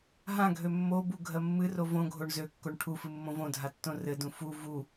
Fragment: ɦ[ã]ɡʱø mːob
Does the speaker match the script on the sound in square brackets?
yes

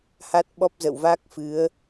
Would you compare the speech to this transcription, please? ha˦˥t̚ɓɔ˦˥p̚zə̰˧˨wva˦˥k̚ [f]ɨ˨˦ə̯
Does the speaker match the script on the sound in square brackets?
yes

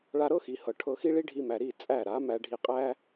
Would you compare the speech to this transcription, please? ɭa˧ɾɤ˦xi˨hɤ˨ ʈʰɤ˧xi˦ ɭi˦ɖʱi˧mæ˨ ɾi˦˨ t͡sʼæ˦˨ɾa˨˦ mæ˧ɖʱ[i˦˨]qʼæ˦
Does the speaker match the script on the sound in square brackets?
no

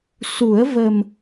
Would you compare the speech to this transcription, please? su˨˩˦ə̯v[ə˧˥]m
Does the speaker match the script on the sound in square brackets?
no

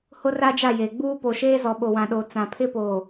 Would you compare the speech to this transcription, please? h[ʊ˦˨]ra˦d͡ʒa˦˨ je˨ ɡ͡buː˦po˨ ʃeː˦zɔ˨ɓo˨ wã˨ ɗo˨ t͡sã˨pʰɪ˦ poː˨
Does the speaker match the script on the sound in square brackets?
no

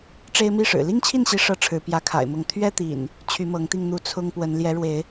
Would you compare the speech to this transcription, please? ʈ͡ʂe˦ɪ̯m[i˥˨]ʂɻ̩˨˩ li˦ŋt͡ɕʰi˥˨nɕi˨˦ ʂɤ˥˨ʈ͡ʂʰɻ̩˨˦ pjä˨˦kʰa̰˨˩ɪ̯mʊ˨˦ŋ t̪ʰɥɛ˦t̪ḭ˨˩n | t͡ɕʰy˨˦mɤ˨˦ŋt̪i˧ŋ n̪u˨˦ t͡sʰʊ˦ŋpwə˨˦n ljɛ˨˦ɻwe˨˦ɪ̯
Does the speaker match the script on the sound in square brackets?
yes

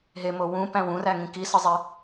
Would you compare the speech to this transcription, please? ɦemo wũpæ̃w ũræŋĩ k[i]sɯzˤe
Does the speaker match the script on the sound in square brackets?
yes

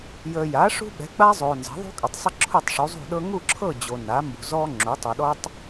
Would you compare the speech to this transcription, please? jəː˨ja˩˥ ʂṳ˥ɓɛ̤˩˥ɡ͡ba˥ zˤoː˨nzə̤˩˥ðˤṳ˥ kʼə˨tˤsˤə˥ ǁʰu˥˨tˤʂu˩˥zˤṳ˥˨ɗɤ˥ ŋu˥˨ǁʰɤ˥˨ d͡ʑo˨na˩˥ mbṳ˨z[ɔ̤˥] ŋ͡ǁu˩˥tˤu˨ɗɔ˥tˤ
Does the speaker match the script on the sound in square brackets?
no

